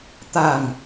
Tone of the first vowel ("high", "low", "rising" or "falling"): low